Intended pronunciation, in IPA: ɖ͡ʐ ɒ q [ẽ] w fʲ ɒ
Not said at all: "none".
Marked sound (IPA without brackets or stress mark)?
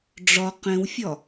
ẽ